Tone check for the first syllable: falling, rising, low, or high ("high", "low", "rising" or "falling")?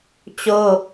high